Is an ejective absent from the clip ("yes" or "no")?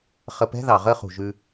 yes